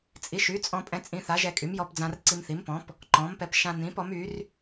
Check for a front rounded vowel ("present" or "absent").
present